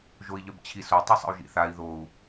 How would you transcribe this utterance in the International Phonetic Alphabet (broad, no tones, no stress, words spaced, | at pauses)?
ʒoi̯ʎœbt͡ɕʰiso tˤisˤə̰u̯ʒḭθai̯ ðou̯